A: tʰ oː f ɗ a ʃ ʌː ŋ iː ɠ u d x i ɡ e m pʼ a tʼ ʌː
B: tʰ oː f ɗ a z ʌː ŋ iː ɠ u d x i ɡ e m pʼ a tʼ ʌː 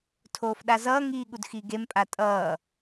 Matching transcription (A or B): B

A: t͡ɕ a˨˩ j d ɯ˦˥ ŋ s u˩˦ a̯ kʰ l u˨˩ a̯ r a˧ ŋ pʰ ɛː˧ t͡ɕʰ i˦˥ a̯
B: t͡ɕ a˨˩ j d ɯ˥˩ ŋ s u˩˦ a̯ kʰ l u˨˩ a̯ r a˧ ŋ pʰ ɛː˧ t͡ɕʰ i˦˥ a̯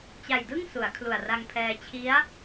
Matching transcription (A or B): B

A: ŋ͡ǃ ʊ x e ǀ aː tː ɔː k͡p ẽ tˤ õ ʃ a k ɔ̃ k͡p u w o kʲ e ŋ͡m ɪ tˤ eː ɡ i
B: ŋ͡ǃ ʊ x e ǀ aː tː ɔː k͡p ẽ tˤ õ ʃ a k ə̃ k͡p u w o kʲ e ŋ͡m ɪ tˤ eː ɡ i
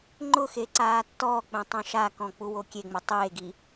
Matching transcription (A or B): A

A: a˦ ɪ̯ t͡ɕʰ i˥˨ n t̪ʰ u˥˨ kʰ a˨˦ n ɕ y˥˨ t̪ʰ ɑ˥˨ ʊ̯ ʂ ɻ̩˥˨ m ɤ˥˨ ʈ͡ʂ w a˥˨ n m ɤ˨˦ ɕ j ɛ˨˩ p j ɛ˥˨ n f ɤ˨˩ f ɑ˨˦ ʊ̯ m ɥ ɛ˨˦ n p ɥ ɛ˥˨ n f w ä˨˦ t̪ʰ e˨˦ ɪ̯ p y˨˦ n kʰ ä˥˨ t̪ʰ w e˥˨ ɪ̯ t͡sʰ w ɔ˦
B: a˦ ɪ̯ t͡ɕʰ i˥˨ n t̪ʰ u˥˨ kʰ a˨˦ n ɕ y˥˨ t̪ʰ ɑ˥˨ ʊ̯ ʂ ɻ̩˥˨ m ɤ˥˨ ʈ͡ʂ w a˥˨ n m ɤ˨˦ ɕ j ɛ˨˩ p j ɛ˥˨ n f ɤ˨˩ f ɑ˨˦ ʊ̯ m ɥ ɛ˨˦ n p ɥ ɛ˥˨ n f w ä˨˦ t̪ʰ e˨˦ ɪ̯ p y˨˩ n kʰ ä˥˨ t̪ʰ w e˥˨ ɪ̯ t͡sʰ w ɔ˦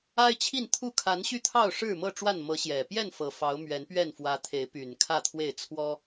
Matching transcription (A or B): B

